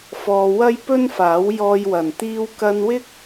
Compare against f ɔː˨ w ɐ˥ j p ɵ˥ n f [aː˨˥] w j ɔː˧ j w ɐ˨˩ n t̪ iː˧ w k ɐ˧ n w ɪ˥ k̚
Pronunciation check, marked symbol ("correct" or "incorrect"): correct